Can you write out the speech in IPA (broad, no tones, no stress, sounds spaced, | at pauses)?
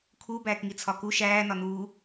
kʰ u b æː k ŋ i t͡sʰ ɒ k u ʃ æː n ɒ n uː